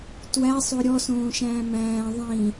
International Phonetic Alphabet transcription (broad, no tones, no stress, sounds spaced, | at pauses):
t w æ sˤ o ɾʲ ɔ s õː ʃ æ̃ː m æ̃ː ðˤ ĩ